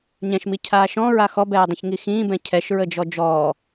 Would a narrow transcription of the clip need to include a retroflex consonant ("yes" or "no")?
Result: no